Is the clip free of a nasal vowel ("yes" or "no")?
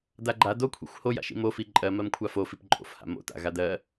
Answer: yes